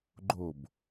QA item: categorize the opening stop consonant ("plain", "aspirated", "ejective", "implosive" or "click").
click